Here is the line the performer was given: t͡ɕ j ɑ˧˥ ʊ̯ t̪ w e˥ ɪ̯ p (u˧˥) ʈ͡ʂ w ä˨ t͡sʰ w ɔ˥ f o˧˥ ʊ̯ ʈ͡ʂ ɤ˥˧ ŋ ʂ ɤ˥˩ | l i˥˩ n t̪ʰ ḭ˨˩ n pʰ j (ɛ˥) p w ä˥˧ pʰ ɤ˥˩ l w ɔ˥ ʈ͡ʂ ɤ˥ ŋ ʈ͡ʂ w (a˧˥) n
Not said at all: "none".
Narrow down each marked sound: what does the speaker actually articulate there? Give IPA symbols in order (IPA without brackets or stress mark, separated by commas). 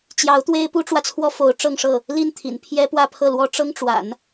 u˥, ɛ˥, a̰˨˩˦